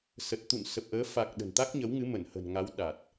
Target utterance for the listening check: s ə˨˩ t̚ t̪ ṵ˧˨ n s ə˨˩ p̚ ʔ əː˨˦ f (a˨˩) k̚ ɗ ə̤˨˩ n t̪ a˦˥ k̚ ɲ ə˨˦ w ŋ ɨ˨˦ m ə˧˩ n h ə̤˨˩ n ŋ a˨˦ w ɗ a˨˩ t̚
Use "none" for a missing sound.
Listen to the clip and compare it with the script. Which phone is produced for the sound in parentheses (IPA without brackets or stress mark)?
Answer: a˨˩